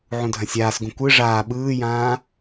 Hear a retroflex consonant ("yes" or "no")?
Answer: yes